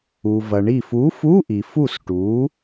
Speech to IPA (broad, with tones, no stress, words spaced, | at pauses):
u˩vɐ˩ ɳi˧˩fu˨˥fu˧˥˧ʔi˩ fu˧˩sʈu˩˧